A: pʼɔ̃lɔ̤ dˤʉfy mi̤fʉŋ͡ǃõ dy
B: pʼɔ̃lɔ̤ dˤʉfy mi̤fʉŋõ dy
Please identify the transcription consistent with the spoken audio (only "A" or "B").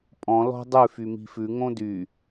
B